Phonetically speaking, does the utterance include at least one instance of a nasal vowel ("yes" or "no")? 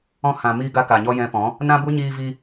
yes